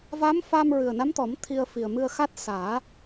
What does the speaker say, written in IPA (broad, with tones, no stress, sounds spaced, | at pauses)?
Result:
v a˧˥ m f a˧ m ɹ ɨ˨˩ ə̯ n a˧˥ m t̪ ɔ˨˩˦ m t̪ʰ i˧ ə̯ f i˨˩ ə̯ m ɨ˧ ə̯ x a˦˥ t̚ s aː˨˩˦